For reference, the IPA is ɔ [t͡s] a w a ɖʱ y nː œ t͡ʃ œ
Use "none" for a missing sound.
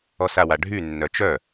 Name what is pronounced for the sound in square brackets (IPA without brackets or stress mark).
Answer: s